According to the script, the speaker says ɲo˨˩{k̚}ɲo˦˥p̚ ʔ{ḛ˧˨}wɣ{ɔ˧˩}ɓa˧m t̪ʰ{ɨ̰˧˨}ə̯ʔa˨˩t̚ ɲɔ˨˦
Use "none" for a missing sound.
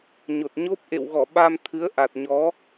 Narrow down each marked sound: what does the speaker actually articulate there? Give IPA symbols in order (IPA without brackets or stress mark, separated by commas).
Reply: t̚, ḛ˧˨, ɔ˧˩, ɨ˨˦